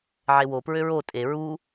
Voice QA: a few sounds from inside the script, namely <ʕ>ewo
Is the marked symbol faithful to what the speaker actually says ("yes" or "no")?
yes